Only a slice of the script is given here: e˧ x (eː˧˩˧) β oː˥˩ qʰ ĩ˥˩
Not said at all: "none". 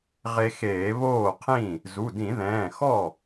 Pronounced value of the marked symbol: eː˧˩˧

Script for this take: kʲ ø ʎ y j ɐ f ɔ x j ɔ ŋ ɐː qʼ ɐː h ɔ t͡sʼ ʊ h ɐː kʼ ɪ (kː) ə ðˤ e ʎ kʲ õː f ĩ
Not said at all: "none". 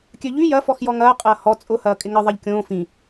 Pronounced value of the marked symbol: ŋ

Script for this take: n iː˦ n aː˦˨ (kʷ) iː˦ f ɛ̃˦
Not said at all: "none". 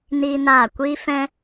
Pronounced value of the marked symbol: kʷ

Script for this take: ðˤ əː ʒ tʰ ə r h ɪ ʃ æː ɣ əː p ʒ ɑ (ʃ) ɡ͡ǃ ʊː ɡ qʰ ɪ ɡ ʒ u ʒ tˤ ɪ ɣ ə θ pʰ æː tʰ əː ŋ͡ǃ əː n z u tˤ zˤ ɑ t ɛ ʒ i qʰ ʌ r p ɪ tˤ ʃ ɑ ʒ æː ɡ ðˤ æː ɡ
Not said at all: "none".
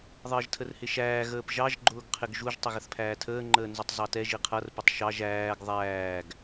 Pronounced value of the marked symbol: ʒ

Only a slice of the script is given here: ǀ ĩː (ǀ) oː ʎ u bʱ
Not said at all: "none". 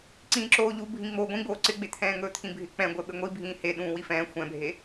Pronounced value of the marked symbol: ǁ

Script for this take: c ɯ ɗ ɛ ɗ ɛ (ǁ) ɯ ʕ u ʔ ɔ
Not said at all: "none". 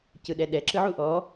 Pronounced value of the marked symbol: ǁ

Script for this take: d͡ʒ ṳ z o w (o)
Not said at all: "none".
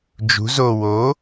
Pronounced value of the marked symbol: o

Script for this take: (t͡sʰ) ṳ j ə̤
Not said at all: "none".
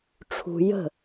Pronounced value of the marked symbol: ʈ͡ʂʰ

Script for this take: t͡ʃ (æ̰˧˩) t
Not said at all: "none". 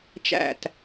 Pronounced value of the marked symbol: æ̰˧˩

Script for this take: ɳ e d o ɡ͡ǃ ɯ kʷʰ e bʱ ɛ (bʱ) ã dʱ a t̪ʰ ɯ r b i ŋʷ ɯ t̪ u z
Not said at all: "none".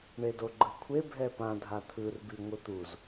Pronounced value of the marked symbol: p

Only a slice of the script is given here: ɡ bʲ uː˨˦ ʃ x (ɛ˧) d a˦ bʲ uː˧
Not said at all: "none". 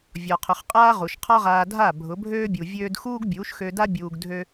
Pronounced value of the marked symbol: ø˧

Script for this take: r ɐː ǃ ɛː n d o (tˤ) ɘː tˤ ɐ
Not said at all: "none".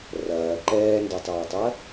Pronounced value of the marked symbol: tˤ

